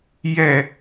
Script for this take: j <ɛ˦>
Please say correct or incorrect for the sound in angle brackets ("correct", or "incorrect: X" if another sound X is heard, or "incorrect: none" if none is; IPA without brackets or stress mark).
incorrect: ɛ˨